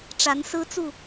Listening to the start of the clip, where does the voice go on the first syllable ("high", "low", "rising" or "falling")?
rising